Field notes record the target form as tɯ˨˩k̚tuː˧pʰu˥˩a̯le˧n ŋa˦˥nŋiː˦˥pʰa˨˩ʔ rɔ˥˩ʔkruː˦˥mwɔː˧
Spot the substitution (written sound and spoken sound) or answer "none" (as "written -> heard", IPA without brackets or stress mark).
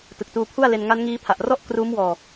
none